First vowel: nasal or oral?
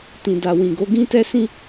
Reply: nasal